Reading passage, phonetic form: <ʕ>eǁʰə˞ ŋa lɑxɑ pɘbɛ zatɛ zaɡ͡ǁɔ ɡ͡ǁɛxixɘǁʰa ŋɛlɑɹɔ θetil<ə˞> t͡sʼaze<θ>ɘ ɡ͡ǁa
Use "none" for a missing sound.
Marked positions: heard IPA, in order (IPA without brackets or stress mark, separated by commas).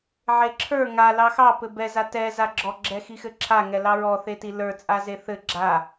ʕ, ə˞, θ